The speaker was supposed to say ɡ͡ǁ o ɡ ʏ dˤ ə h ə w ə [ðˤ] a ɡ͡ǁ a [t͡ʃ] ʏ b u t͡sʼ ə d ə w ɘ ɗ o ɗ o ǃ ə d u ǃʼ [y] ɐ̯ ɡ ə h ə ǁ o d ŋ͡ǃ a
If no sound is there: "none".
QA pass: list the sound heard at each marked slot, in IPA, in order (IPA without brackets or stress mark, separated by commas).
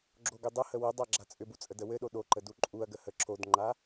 dˤ, t͡sʼ, u